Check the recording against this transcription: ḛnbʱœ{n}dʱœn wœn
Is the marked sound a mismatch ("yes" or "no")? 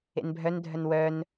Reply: no